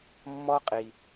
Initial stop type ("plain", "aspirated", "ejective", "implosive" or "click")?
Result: ejective